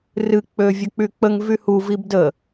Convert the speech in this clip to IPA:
r ɨ k͡p ø vʲ ə k͡p y k͡p ə ŋ v y h u v i b d ə

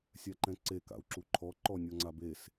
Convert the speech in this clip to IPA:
sʲ a ǃ ɛ̃ ǀ e k a̰ u̯ ǁ u ǃʰ ɔ ǃ ɔ nʲ ɔ ŋ͡ǀ a b e s

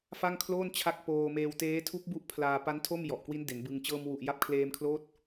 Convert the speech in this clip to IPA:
f a˥˩ ŋ kʰ l oː˥˩ n t͡ɕʰ a˦˥ k̚ p oː˧ m eː˧ w t eː˦˥ tʰ u˦˥ k̚ b u˦˥ ʔ pʰ l aː˧ p a˦˥ n tʰ o˥˩ m j ɔ˨˩ ʔ k w i˦˥ n d e˩˦ n b ɯ˧ ŋ t͡ɕ ɤː˧ m w u˨˩ ʔ j a˦˥ p̚ kʰ l eː˧ m kʰ l oː˦˥ t̚

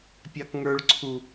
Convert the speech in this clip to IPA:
pʲ ɑ k ŋ ə˞ ɭ ǀʰ u

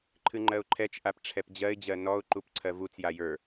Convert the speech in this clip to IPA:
ǃʰ ɨ ŋ͡ǃ ɜ ʊ̯ ǃʰ ɛ t͡ʃ ʔ a p ʈ͡ʂʰ ɛ p d͡ʑ ɜ ɪ̯ d͡ʑ ɜ n ɔ ʊ̯ ǃ u p ǀʰ ɜ v u t͡s j a j ə˞

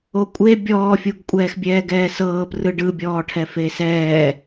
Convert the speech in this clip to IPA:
o kʷʼ e bʲ ɔː fʲ u ɡ kʷʼ ɛː x bʲ ɛː ɡ ɛː s ɤː p r ɯ ɖ ɯ bʲ ɔː ʈʰ ɛ f e s ɛː

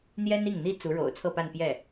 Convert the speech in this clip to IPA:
n̪ j ɛ˥ n i˥˩ ŋ n̪ i˥ t͡s u˧˥ ɻ o̰˨˩ ʊ̯ t͡sʰ ɤ˥˧ p a˥˧ n p j ɛ˥˩

